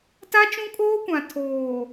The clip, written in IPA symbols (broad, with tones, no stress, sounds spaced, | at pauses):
t a˦ t͡ʃ ũ˦ kʼ oː˦ kʷ ã˨ tʰ oː˨